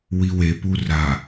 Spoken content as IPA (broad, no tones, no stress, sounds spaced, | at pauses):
w i w e p u r a